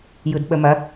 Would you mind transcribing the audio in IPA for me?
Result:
j ɯ d ɓ ə m ɐ

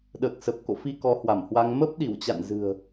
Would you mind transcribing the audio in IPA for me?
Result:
ɗ əː˨˩ k̚ s ə˨˩ p̚ k o̰˧˨ f i˧ k ɔ˨˦ h w a˧˩ m h w a˧ ŋ m ə˦˥ p̚ ɗ i˧˩ w t͡ɕ a̰˧˨ n z ɨ̤˨˩ ə̯

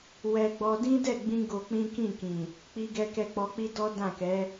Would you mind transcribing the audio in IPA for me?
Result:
w ɛ˧ ɡ͡b ɔ˧ d ĩ˦ d ɛ˦˨ ɡ͡b ĩ˧ ɡ o˧ k͡p ĩ˦ k ĩ˦˨ k ĩ˨ | k͡p i˧ ɡ ɛ˧ k ɛ˧ k͡p ɔ˧ k͡p i˦ d ɔ˦ d ã˦˨ k ɛ˨˦

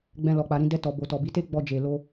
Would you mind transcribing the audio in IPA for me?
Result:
ɡ͡b ɛ̃˧ l ɔ˨ k͡p a˨ ɾ ĩ˧ d ɛ˧ t ɔ˨ b o˨ t ɔ˨ b i˨˦ t e˦ ɡ͡b ɔ˧ d͡ʒ e˨ l o˧

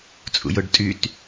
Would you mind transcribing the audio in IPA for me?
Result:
t͡sʼ ṵ j ʊ ɖ tʼ y t

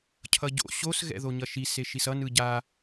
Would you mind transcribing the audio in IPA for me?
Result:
cʰ ʌ ɟ o̰ ɕ o s ɣ ɛ̰ ð o ɲ ʌ ʃ i s e ʃ i s ʌ n ɯ ɟ a

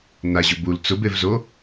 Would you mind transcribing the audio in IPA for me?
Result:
n a ʑ ʊ b u l t͡s ʊ b e v z o

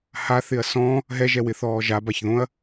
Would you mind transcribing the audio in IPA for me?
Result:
h a θ ɪ ɐ̯ s ɔ̃ | ɦ ɛ ʒ ɛ w ɪ θ ɔː ʒ a b a ç ð õ ɐ̯

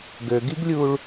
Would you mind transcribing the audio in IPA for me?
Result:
ɡ ø ɡ i ɡ lʲ u ɭ

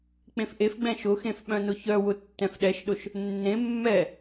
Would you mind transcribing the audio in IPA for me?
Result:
k͡p ẽ f ʔ e f ɡ͡b ɛ̃ ʃ ʊ x ẽ f ɓ œ̃ n ʊ ç œ w ʊ tː ɛ̃ f ɗ ɛ ʃ ɗ ʊ ʃ | nː ẽ mː ɛ

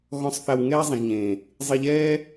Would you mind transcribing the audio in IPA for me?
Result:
ɣ ɔ̃˦ sˤ θ a˧ w ŋ ɛː˦ zˤ ĩ˨ ʒ ɲ ẽː˨ | zˤ e˧ ʎ ɛː˦

